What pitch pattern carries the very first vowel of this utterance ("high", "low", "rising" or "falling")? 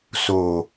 low